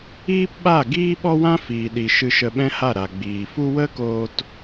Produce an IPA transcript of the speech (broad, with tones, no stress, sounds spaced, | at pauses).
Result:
iː˦ p ɓ a˦˨ ɡ iː˦ ɓ ɔ˦ w ã˦ f iː˨ ɗ i˨ ʃ ɨ˧ ʃ ə˧ ɓ ɛ̃˦ h a˦˨ ɾ a˨ ɡ͡b iː˨ f u˦ w ə˦ k oː˧ t